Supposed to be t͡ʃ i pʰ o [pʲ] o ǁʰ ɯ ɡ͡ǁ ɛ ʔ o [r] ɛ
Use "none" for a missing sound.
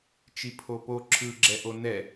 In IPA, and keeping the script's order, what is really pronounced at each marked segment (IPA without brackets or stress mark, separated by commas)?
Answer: p, n